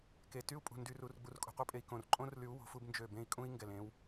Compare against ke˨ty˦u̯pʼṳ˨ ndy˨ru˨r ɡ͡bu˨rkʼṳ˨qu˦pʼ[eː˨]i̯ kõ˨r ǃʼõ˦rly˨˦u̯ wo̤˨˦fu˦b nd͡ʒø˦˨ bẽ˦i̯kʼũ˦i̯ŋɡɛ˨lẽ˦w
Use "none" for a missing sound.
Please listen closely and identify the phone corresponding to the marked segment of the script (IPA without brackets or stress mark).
e˨